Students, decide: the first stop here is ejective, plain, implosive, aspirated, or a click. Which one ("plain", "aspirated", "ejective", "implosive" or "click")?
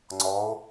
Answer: click